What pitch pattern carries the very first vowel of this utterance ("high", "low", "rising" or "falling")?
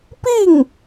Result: falling